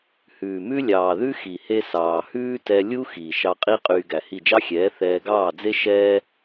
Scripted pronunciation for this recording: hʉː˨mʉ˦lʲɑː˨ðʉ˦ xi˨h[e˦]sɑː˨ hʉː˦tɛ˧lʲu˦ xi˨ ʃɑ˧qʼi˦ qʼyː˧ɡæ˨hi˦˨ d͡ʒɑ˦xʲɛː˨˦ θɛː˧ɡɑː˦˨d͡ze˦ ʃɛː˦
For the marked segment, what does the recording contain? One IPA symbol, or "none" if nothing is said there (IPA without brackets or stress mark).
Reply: e˦